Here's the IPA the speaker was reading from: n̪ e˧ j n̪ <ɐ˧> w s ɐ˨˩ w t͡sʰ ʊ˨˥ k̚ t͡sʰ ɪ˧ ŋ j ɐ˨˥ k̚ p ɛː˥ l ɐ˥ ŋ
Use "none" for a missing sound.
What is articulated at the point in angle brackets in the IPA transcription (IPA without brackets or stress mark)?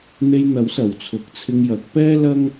ɐ˨˥